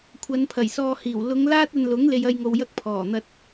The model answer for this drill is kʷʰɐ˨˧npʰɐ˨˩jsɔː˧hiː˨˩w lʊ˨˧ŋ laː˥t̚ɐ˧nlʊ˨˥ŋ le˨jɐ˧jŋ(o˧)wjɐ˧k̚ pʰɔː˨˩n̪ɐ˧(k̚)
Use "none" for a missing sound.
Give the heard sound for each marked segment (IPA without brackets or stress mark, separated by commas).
o˨, t̚